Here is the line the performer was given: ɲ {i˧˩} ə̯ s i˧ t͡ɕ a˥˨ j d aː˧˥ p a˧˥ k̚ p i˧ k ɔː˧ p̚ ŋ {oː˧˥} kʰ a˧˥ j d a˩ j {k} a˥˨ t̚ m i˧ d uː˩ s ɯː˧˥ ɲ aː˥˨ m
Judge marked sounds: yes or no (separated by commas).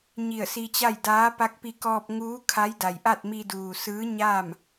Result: yes, no, no